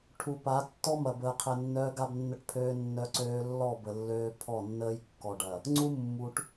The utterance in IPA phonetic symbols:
ʈʰu˨pa˨˦ tːɔ˦mɐ˨bəː˨qʰɛ˨ nːœː˦ɡa˦bnːə˦ʈpʰøː˦ nːœ˦ǀøː˦ lːɔ˦˨ bə˨lːøː˦ pʰɔ˦˨nːəː˦j kːɔ˨ɖɐ˨ | ŋ͡ǀu˦mːu˨ʈ

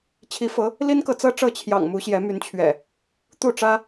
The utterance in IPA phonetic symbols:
t͡ɕʰi˨˦fɤ˨˦ | li˦nkɤ˨t͡sɤ˦ ʈ͡ʂɤ˥˨t͡ɕʰjɑ̰˨˩ŋ mu˨˦ɕjɛ˨˦my˨˦nt͡ɕʰɥɛ̰˨˩ | t̪u˥˨ʈ͡ʂä˦

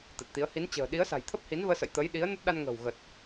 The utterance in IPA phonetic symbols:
t̪ə˨˩t̚t̪i˨˦ə̯ hi˨˦nt͡ɕə̤ː˨˩ ɗi˨˦ə̯sa̤˨˩j t̪ʰə˦˥p̚hi˨˦nvəː˧sə̰˧˨j t̪ə˨˦j ɗi˨˦ə̯nə˦˥t̚ɗa˧nŋə̤ː˨˩w ɣə˨˩t̚

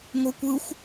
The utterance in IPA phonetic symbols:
ŋʷɤkʷɯxʷ

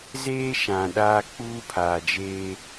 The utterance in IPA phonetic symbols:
zeː˦ ʃã˨ɗaː˦k͡puː˦pʰaː˨ d͡ʒeː˦

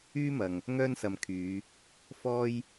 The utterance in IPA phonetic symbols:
yː˥mɐ˨ŋ | ŋœː˥nsɐ˨mkʰyː˨˧ | fɔː˥j

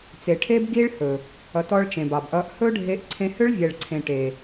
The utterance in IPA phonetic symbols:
t͡se˨ʈʰe˦bɡi˦ɭhɵ˨ | ʌ˧tɔ˦ɭ t͡ʃẽ˨bɑ˨bʔʌ˧ʔ hɵ˦ɖʱe˧ʔ ǀʰẽ˧hʏ˦ɭvʲɛ˨ɭǀʰẽ˨ ʈe˨

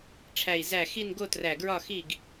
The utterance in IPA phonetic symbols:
ʈ͡ʂʰæ˧˩i̯ zæ˧˩ xi˥˨n ɡo˥˨træ˧˩ɡɹɒ˥˨ xi˥˨ɡ

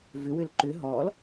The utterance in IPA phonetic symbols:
vʏwʏl ǃʏ ɦɔl

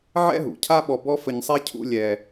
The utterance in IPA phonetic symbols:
ʕɛ̰˥ɦṵ˩cʰa˥ɓɔ˧ bɔ˥fə˧ɲsˤɛ˥ cʰṵ˥lʲɛ˧

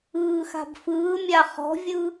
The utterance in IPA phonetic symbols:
ɯːxa̤bfɯːmʲa χɔ̤vʲɯ

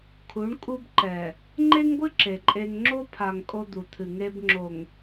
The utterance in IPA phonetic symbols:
kʰu˨˦ɳkʼu˦bǃɛ˨ | ŋ͡ǃe˦ŋɡʷɨ˦ ǁe˨ǃʼe˦ŋ ŋ͡ǁo˦pʰa˨ŋ kʼo˦d̪u˨t̪ʰɨ˨ ŋe˦bŋ͡ǁo˨ŋ

